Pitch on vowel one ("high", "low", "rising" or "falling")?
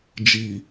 low